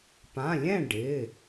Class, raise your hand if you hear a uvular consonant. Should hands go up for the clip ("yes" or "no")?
no